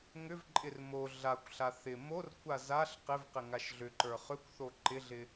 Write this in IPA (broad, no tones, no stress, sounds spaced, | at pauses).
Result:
ŋ ʏ v ǃʼ ɪ r m o ɮ a kʷ ɬ a θ ɪ m o r kʷʰ a z a ɬ q ɪ v q ɪ ŋ a ʃ ɮ ʏ ǃ ə˞ χ ʏ kʷ θ o ǃ ɪ ɮ ɪ